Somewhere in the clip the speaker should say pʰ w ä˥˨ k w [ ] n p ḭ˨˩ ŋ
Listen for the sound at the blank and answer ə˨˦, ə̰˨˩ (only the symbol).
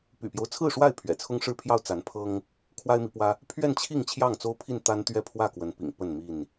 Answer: ə˨˦